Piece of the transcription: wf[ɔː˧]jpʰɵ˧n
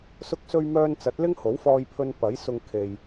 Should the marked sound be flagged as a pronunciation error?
no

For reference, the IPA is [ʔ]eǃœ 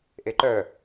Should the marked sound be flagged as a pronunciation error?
no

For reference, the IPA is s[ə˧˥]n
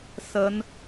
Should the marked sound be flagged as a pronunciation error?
yes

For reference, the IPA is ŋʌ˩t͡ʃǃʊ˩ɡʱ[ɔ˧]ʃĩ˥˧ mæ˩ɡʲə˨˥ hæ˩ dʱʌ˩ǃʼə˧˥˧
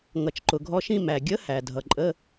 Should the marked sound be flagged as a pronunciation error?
no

